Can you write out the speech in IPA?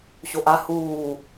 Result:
ɕoʔa huː

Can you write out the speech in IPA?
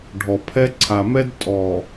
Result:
ɖʱɔ˨pʰɛ˦ǀʰa˨mɛ˦d tʼɔ˨

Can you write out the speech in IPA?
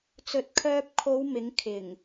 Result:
t͡sɵ˨˥t̚kʰœː˧p̚ kʰo˨˧w mɪ˨˥ŋ kʰɪ˨˩ŋ

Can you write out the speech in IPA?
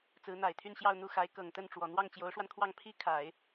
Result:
t͡sɹ̩˧˥n̪a˨˩ɪ̯t̪ʰy˥˧nɕjɑ˥˧ʊ̯ n̪u˥˩xa˧˥ɪ̯ kɤ˨˩ŋt̪ə˥˩nʈ͡ʂwɔ˨˩ n̪wɑ˥˩ŋt͡ɕjo˧˥ʊ̯ʂwa˧nkʰwɑ˥˩ŋ pʰi˥ kʰa˨˩˦ɪ̯

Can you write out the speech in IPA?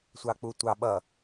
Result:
sʷɑk͡putʷɑ ɓʌ

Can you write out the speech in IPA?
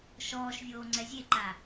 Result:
ʃɔːʃvʲoː ŋ͡ǀɛzʲeǃa

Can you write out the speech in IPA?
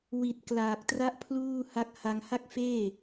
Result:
wi˨˩t̚ klaː˨˩k̚tra˥˩ʔpʰluː˥˩ ha˥˩k̚ ha˧ŋha˥˩k̚feː˥˩

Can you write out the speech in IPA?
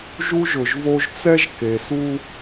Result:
ʒu˦ʒʊ˨ʒvo˦ʒ t͡sɛ˦ʒke˨su˦

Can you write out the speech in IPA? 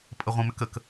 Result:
pʼəʁʷĩmʏkək

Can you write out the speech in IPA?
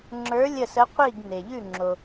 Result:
ŋ͡ǁə˞˧˥lʲə˦˨sə˧˥ qʷi˦˨ɡne˩ ʎʉ˦˨ŋ͡ǁo˩

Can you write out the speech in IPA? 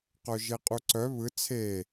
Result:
qœʒeqʼuǀœ βɯ t͡sʰe

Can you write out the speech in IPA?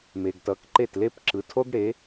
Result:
me˩ɡtʌ˩˥k ǃe˥˩tle˥p ǁɯ˩˥tʰo˥ɡɽe˩˥

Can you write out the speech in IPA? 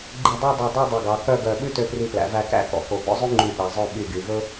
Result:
ɡ͡ǃi˧˩dˤæ˥˧ dˤœ˧˩dˤʉ˥˧ dˤɵ˧˩ɡɑ˩˧kœ˥˧ɡœ˧˩ ɓʉ˥tø˧pri˧˩plæ̰˩˧ væ˧kæ̰˥kɔ̰˩˧ko˩˧ bɔ̰˥zˤʉ˥ŋ͡ǃy˧˩ ɓæ˩˧zˤœ˥˧ ɓy˧˩ɡy˩˧vɵ˥

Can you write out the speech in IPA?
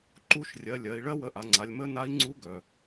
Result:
ǃu˧ʃrʲɜ˩˧ lʲɜ˩˧i̯ɭɜ˥wə˧ʔa˩˧ ŋ͡ǀa˩˧lʲmə˧˥na˧˥i̯ ŋ͡ǀu˧˥ɡœ˩

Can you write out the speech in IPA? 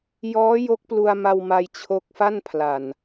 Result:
jɔː˦˥ jo˦˥k̚plu˧a̯ma˧wma˧j t͡ɕʰo˦˥k̚fa˥˩npʰla˨˩n

